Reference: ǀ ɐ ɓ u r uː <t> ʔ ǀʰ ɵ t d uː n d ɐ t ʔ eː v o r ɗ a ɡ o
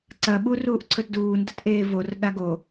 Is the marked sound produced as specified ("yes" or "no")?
no